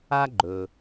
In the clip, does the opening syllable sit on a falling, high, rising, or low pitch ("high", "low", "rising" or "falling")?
high